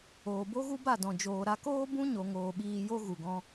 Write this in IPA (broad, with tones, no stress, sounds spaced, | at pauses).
oː˨ b o˦ ɣ u˦ b a˦˨ d ɔ̃˨ d͡ʒ oː˨ ɾ a˧ k oː˦ b ũ˦ ɲ o˨ ŋ oː˨ ɓ iː˧ j o˦ ɣ u˨ ɡ ɔ̃˧